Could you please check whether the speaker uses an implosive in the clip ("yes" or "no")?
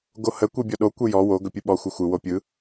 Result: yes